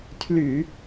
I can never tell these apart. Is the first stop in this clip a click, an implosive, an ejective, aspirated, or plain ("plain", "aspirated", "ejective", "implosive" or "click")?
aspirated